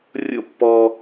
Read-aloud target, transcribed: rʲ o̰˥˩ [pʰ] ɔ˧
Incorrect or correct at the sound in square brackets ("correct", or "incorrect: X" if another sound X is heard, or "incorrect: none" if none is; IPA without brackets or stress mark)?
incorrect: pː